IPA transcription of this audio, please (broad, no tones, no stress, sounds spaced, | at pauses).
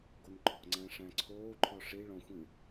ɡ o n ǃ ɔ̤ ŋ͡ǀ æ̃ ʂ æ̃ ǀʰ oː ǃʰ ɔ ʂ i ɭ ɔ̃ xʷ ĩ